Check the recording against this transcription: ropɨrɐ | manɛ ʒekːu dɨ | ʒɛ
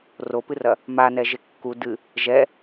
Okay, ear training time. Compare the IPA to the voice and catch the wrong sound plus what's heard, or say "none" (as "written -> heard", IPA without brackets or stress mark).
none